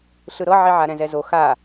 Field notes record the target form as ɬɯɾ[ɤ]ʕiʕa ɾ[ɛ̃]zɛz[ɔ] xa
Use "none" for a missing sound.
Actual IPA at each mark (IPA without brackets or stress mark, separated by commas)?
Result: ɤ, ɛ̃, o